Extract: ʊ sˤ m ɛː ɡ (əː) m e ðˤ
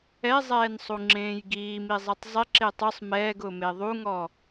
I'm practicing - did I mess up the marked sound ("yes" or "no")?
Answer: yes